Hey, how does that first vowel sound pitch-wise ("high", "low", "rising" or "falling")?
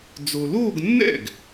low